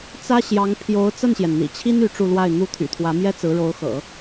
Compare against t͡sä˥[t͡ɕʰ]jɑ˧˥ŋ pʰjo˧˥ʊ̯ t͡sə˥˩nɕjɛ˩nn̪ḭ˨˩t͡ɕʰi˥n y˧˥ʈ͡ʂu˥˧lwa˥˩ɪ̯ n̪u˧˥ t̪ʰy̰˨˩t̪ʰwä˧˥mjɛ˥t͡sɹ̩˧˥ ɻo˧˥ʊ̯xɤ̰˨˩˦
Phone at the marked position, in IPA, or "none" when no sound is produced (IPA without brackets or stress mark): ɕ